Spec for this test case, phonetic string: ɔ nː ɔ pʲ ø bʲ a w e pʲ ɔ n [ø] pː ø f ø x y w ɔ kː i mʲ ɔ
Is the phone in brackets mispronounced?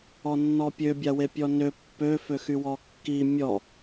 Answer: no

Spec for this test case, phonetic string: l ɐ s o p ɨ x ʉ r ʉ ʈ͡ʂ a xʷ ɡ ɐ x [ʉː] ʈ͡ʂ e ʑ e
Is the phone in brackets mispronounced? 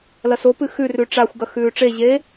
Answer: no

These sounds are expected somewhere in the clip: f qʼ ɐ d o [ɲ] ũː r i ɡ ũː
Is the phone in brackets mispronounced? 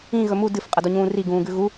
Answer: no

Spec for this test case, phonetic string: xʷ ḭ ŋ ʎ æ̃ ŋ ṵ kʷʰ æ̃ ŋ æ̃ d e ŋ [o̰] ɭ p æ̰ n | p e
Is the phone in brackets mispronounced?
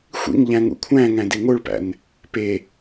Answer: yes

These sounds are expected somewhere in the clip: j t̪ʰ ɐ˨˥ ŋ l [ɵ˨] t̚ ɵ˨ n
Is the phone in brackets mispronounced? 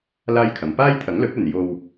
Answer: yes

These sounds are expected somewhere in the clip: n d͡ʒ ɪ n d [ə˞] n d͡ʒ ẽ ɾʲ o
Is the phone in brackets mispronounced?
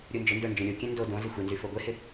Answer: no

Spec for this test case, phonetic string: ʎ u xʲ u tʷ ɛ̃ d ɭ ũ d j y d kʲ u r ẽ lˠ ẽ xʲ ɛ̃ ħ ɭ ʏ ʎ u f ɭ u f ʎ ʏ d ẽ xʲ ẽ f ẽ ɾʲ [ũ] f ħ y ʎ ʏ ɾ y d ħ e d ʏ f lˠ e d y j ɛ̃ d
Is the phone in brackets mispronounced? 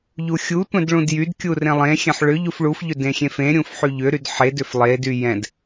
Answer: no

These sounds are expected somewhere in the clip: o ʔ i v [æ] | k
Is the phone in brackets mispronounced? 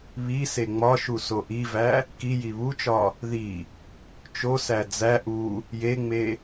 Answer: no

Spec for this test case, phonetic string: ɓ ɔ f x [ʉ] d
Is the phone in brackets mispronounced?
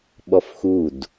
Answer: yes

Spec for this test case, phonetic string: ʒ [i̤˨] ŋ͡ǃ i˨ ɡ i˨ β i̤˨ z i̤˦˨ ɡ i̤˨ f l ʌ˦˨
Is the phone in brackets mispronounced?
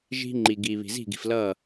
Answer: yes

